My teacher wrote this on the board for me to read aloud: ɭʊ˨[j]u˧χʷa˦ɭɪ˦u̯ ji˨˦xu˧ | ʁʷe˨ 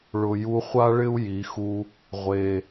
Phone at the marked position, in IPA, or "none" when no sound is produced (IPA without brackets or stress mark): j